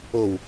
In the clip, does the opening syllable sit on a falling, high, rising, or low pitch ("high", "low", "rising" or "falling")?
low